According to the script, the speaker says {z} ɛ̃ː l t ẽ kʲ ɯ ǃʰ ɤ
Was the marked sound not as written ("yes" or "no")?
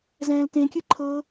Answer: no